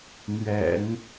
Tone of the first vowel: low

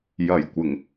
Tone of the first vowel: low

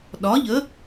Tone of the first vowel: rising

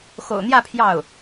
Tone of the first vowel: low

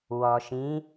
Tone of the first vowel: low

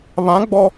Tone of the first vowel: rising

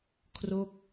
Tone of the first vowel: falling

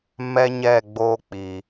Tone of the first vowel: high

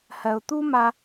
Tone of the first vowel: low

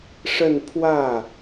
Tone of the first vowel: falling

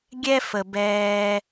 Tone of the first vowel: high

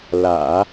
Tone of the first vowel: low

